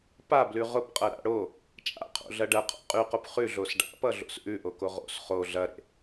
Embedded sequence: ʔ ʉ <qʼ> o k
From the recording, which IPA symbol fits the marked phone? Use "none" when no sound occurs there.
ʔ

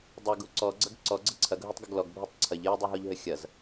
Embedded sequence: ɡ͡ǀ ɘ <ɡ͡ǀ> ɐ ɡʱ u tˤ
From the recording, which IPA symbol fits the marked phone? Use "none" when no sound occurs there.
ǀʰ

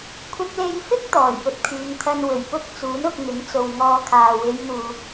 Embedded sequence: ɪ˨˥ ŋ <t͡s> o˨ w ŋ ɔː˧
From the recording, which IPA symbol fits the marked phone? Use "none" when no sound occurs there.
t͡s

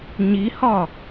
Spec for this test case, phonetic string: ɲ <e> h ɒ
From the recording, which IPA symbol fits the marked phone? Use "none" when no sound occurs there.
i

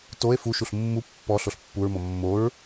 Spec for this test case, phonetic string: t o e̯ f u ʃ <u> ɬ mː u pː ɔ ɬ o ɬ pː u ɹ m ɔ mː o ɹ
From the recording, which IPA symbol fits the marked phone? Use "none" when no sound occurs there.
u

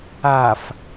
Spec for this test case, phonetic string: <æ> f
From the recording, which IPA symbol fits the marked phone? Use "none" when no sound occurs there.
a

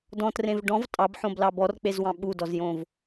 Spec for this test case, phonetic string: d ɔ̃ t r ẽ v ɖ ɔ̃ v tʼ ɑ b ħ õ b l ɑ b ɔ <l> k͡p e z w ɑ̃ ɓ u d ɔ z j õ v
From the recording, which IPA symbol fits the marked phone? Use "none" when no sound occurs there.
r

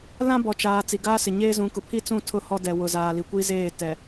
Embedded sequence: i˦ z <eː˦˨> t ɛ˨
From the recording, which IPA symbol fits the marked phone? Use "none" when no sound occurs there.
eː˦˨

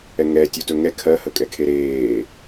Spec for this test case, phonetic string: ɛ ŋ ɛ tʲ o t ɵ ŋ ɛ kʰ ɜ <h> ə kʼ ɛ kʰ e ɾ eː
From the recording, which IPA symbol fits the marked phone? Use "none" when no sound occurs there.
h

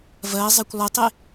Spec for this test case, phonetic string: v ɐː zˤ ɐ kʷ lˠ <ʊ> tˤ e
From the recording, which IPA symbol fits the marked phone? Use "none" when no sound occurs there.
ʊ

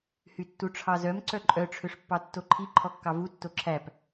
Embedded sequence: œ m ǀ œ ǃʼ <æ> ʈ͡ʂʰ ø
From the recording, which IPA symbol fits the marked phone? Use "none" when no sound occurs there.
œ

